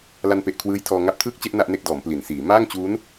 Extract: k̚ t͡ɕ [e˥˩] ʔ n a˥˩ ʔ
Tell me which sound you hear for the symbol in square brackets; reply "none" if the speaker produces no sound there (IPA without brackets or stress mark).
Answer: e˥˩